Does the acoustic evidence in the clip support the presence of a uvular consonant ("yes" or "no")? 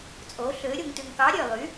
no